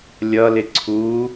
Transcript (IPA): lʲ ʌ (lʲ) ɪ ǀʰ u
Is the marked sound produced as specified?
no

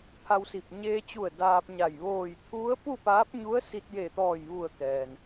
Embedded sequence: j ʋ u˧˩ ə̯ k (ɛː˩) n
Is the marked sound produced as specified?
yes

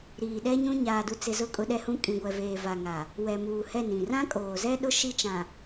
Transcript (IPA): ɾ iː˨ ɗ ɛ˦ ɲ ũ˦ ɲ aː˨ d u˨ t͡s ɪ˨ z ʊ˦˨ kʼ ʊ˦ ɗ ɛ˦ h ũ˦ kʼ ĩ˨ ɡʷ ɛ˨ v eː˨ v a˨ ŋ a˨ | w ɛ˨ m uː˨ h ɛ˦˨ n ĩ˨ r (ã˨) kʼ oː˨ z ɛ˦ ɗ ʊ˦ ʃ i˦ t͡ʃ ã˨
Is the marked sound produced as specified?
no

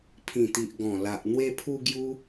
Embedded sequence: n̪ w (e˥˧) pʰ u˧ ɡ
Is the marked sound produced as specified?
no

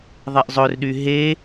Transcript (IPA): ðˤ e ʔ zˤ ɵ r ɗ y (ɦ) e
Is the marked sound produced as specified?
yes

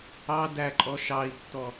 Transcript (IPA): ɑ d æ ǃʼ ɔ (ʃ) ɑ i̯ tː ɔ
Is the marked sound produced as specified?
yes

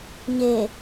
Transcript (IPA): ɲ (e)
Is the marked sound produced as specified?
yes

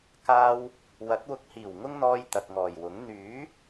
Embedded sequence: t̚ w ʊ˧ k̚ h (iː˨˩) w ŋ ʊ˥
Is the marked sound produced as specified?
yes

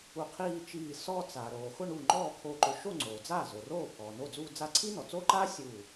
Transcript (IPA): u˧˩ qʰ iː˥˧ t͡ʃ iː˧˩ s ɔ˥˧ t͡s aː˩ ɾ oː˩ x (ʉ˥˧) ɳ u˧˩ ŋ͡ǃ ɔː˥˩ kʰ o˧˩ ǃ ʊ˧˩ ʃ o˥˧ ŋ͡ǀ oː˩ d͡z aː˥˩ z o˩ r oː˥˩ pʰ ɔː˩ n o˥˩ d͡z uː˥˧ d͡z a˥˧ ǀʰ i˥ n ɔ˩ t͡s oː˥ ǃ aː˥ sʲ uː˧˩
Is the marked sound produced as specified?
no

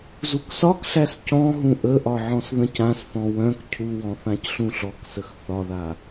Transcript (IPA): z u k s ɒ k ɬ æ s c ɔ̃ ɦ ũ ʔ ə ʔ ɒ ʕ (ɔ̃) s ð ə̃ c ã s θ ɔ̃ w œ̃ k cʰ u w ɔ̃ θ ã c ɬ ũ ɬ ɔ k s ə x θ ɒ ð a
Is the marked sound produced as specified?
yes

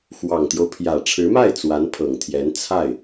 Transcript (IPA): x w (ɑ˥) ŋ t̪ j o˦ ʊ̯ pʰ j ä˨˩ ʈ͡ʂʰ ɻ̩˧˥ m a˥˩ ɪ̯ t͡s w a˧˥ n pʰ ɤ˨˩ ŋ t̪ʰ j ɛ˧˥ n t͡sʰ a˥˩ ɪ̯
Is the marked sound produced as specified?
no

